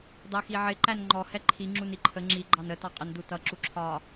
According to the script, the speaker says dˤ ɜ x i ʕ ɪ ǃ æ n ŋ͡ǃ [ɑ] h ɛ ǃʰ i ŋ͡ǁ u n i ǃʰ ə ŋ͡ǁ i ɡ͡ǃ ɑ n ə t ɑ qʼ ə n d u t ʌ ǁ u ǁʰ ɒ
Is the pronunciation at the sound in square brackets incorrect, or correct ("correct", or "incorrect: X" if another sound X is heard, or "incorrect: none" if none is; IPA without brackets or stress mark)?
incorrect: ɔ